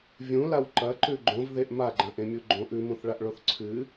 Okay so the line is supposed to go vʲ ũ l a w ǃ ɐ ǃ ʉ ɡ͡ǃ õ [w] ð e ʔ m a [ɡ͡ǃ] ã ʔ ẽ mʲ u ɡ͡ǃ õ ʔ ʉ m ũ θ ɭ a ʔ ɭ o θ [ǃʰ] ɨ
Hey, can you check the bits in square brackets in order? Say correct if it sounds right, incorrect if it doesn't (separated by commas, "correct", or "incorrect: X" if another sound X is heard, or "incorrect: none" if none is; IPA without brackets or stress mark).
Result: incorrect: v, correct, incorrect: ǀʰ